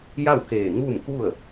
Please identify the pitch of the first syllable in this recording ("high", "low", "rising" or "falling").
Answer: falling